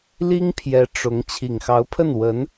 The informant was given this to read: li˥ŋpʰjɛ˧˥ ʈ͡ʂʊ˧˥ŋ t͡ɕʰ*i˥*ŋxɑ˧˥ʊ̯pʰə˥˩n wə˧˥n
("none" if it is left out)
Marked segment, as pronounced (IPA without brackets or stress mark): i˨˩